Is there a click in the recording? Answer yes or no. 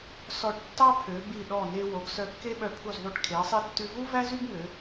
no